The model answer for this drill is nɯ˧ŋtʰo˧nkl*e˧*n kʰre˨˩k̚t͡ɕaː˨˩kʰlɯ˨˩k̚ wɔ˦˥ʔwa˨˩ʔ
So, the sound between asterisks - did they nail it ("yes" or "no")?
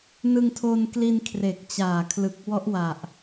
no